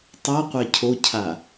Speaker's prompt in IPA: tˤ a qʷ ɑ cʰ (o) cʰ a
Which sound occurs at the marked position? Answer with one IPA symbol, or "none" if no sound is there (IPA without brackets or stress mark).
o